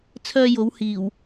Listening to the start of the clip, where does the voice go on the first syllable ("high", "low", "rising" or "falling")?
high